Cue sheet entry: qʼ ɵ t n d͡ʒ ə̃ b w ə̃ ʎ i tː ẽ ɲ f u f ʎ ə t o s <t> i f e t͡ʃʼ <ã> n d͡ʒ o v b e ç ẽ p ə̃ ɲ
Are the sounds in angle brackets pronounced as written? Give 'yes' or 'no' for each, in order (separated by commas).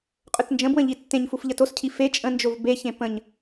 no, no